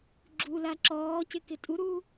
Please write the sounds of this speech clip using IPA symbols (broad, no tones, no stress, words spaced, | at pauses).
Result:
ɡ͡ǁula ǁɔːcɪ kɪtʼuɾuː